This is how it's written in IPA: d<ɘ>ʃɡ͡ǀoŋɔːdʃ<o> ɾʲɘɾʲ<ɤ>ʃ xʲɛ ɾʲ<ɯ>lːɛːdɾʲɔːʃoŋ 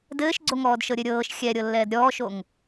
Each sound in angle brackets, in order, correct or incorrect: incorrect: ɘː, incorrect: ɤ, incorrect: ɤː, incorrect: ɤ

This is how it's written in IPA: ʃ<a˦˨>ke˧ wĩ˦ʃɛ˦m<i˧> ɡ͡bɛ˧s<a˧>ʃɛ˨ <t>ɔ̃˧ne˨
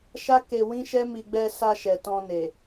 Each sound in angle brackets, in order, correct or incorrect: incorrect: a˦, correct, correct, correct

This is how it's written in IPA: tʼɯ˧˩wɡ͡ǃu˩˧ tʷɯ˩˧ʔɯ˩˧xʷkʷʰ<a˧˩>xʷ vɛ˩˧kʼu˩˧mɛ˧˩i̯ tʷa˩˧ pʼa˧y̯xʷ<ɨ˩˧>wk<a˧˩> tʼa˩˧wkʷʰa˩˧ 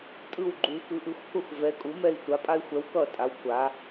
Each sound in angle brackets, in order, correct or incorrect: correct, incorrect: ɛ˩˧, incorrect: ʌ˧˩

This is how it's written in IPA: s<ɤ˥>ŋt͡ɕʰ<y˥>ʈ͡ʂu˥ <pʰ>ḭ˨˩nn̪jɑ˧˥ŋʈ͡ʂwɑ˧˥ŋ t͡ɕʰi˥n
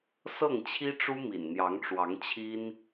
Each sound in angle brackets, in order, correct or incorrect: incorrect: ɤ˥˩, incorrect: i˥, incorrect: m

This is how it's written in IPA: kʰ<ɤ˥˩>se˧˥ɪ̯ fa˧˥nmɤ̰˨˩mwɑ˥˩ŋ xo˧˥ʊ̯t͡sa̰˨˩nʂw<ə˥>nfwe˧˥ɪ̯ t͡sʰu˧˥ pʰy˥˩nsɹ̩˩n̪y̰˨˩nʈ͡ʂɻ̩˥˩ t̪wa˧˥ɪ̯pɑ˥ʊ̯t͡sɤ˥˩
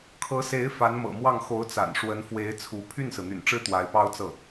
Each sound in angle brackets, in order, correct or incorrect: incorrect: ɤ˧˥, incorrect: ə˧˥

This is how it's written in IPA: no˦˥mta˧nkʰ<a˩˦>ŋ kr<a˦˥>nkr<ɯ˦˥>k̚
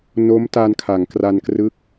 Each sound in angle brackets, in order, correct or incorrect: correct, incorrect: a˧, correct

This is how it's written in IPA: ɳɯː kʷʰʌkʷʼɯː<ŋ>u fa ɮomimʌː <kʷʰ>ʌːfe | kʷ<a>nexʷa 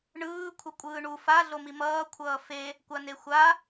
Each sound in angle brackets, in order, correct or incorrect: incorrect: ɳ, correct, correct

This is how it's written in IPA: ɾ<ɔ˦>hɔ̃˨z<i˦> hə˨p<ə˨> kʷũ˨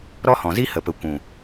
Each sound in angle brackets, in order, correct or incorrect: correct, correct, correct

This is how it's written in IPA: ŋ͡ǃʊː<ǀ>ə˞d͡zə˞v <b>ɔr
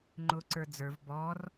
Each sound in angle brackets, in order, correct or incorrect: correct, correct

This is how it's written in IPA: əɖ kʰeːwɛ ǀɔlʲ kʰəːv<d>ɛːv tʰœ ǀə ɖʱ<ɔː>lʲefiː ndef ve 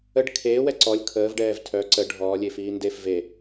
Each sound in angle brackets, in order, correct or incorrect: incorrect: ɖ, correct

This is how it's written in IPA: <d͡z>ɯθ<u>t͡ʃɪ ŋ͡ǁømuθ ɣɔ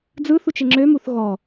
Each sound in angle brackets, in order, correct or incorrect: correct, correct

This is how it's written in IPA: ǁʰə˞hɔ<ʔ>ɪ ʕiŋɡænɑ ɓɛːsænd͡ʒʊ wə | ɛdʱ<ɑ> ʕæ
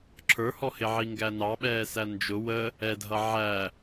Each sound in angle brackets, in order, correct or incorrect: incorrect: h, incorrect: ʌ

